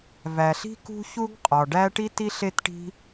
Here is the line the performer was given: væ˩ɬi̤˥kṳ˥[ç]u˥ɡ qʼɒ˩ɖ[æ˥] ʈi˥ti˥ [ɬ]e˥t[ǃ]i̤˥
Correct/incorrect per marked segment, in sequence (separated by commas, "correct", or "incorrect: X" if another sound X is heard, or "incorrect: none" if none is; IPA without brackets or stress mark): correct, correct, correct, incorrect: ʈ